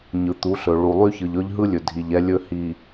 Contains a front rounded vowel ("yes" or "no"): yes